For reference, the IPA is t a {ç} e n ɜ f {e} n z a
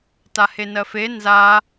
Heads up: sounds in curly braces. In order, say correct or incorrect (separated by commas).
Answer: incorrect, correct